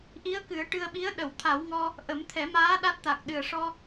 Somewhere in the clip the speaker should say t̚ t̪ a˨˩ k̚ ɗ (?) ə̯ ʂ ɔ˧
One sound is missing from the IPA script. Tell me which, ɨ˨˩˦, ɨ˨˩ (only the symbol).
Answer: ɨ˨˩